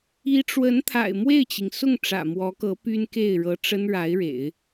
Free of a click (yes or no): yes